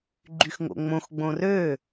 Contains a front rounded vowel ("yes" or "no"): yes